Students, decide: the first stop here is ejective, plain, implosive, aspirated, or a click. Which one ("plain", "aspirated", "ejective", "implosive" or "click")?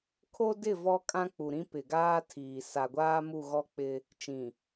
aspirated